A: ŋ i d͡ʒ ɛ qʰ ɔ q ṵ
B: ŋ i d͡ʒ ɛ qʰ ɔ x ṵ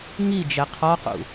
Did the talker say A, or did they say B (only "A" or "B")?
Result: A